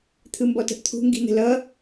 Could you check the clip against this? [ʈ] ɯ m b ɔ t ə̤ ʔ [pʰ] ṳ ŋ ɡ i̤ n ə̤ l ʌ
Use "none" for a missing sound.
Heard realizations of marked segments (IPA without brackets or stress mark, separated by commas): t̪ʰ, t̪ʰ